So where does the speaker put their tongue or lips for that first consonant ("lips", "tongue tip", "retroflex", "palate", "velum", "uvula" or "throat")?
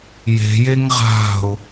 palate